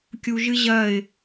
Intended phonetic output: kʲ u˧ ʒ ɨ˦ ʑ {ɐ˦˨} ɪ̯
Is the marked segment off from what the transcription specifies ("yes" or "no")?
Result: no